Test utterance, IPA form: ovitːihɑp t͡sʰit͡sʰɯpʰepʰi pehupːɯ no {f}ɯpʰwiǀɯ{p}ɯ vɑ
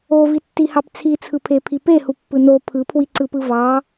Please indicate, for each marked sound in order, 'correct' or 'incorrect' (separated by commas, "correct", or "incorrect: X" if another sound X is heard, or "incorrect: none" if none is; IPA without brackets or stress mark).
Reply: incorrect: pʰ, correct